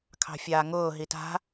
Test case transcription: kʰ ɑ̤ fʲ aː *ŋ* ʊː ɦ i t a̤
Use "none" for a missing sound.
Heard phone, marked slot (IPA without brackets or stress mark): ŋ